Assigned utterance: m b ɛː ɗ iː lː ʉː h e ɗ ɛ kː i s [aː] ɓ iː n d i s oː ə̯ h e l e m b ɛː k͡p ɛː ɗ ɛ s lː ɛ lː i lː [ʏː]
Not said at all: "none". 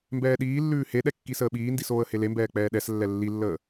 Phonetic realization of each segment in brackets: əː, əː

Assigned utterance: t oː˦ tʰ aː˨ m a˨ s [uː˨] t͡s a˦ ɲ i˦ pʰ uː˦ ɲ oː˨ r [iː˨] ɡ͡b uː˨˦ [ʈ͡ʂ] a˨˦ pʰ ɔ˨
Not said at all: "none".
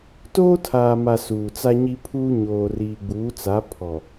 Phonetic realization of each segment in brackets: uː˨, iː˨, t͡s

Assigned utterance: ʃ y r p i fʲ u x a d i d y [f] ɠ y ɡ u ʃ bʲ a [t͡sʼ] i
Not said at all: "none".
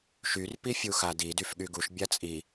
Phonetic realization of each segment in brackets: f, t͡sʼ

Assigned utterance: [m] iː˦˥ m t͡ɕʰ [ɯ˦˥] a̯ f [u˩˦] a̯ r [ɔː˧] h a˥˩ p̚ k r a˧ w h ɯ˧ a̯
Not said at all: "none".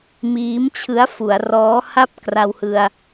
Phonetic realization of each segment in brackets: m, ɯ˦˥, u˩˦, ɔː˦˥

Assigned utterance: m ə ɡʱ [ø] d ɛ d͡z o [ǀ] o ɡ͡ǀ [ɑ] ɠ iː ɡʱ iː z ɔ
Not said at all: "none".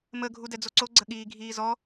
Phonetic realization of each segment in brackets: u, ǀ, ə

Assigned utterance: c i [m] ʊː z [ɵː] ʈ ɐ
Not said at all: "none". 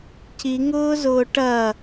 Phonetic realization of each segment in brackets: ŋ, ʊː

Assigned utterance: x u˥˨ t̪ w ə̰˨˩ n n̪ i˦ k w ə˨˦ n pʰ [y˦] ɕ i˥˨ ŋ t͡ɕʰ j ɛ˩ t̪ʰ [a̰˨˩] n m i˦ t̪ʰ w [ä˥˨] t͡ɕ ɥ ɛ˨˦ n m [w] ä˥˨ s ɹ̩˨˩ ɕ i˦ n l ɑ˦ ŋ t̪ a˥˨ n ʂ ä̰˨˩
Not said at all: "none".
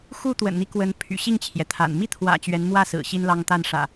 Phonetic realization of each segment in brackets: y̰˨˩, a̰˨˩, ä̰˨˩, w

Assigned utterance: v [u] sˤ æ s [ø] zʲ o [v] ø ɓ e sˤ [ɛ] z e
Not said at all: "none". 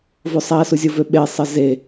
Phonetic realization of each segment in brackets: o, u, v, ɜ

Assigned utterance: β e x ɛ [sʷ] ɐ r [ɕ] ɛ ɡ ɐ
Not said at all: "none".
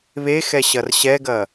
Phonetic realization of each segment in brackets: ɕ, ɕ

